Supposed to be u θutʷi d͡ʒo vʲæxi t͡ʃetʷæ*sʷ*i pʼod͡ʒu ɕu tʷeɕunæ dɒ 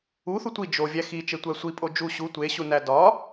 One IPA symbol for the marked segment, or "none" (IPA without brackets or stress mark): sʷ